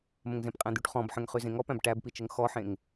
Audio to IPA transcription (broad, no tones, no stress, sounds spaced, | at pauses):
m ə̃ ŋ z ẽ p qʼ æ̃ d̪ y ʈ χ ɔ̃ b ħ ə̃ ŋ χ y z ẽ ŋ ɔ p æ̃ b ʈ æ b p i t͡ʃ ə ŋ x ɔ ħ ẽ ŋ